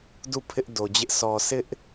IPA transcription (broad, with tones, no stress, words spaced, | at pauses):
du˦˨ pʰɪ˦ʔdo˨d͡ʑɪ˦ʔ sʰɔ˨sʰɪ˦ʔ